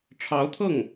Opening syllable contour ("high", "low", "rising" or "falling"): rising